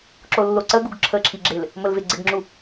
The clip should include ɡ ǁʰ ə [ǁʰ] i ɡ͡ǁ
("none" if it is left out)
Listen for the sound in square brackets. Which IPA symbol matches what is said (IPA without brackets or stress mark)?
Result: ǁʰ